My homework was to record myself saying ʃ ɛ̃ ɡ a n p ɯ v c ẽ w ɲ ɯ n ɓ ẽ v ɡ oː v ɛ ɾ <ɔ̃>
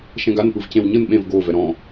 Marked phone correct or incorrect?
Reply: correct